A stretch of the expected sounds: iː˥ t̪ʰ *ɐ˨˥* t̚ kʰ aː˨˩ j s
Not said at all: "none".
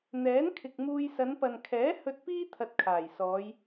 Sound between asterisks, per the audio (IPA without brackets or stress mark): ɐ˧